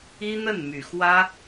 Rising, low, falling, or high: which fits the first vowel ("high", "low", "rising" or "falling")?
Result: high